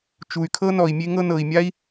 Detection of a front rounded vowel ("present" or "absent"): present